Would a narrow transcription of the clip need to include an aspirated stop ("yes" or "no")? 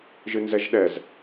no